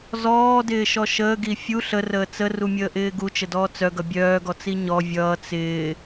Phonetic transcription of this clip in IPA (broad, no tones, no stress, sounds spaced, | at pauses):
z ɔː d ɪː ʃ ɔ ʃ əː ɡ i fʲ u ɬ ə r əː t͡s ə r u mʲ əː ʔ ɪː ɡ u t͡ʃ ə d ɔː t͡s œ ɡ ʌ bʲ œː ɡ ɔ t͡s i ɲ ɔ vʲ ʌː t͡s ɪː